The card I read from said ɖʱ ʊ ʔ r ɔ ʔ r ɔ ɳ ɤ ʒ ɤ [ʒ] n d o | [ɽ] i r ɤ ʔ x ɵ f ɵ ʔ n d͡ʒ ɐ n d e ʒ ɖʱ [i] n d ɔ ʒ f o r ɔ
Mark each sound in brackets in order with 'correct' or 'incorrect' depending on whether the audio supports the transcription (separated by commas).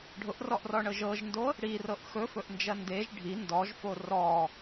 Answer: correct, correct, correct